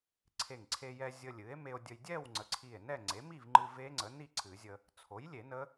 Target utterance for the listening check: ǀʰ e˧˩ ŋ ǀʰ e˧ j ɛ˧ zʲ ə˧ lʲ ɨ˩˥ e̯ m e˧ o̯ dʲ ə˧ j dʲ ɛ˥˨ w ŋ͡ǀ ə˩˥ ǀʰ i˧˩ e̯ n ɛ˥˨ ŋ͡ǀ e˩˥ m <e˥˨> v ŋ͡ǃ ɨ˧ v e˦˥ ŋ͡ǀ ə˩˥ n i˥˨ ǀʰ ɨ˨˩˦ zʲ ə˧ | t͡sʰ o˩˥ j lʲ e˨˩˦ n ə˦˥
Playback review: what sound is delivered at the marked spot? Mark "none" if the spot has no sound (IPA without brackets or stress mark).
i˥˨